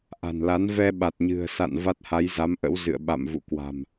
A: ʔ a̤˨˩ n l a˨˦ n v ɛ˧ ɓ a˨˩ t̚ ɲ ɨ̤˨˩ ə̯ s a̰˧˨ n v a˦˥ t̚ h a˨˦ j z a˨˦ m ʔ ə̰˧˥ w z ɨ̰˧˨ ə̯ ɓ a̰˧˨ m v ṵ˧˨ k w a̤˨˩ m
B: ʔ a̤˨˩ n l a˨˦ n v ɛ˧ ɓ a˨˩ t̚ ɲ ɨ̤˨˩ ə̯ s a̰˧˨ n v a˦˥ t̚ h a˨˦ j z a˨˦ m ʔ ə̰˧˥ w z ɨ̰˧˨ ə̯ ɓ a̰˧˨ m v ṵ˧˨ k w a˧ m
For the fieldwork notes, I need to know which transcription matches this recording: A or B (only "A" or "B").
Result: A